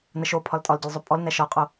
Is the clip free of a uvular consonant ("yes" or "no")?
no